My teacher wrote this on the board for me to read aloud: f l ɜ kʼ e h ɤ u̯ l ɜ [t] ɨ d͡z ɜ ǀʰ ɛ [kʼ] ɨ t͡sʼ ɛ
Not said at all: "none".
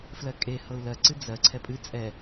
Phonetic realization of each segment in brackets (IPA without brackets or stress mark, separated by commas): ǀ, pʼ